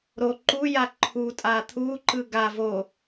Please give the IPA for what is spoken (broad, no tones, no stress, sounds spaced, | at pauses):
ɾ o ǃ u j a ǃʰ u tʼ a t̪ʰ u ǃ ɯ ɡ a v o